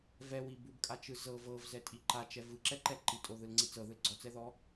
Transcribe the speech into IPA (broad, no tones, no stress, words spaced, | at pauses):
vɛwi bubkʼat͡ʃɯ zɤ vɤvzɛtʼi ǃat͡ʃɛ vɯǁɛǃɛ ǃitʼoðɯlŋ͡ǀi t͡sɤðɯl ɡ͡ǀɔt͡sɛðɔ